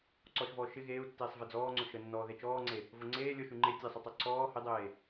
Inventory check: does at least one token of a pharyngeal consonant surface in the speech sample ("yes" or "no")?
no